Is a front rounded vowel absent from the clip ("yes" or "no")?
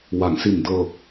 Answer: yes